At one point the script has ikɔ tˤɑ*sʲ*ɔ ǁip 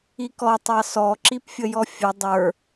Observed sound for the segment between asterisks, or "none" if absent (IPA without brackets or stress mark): s